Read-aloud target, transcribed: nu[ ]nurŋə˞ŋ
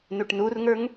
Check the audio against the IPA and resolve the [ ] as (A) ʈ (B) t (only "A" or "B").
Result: A